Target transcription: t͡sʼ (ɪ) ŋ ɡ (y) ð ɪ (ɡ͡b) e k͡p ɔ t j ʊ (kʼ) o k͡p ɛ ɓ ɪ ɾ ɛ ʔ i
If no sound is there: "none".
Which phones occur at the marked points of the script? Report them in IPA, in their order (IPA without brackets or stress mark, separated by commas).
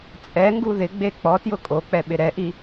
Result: ɛ, u, ɡ͡b, kʼ